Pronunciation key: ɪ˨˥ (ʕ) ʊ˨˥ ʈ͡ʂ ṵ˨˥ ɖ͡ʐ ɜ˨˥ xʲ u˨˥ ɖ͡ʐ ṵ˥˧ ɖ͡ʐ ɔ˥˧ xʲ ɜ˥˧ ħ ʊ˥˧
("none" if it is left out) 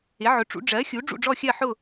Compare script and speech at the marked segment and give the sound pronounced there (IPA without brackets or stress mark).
ʕ